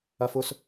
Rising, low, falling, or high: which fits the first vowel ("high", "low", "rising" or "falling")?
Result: high